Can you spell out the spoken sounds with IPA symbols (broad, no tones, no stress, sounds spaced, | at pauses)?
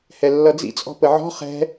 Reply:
h ɛ lː ʌ d͡z ḭ t͡sʼ ɔ̤ p ə ʕ ɔ̤ χ ɛ̤